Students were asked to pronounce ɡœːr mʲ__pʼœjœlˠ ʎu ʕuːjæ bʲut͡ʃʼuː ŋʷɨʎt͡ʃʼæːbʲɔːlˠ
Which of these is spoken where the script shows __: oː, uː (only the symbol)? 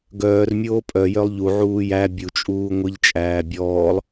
oː